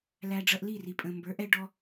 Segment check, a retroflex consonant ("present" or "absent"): present